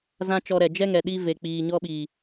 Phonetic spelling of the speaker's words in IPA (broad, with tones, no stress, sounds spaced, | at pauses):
z ã˦ t͡ʃ ɔ˧ ɾ ɛ˨ d͡ʒ ɛ˦ ŋ ɛ˨ ɗ i˧ v e˨ k͡p iː˨ ɲ ɔ˧ ɓ iː˨